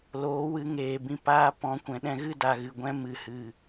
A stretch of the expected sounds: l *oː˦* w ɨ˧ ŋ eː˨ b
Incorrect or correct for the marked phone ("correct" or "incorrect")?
incorrect